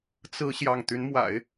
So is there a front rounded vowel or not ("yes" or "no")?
yes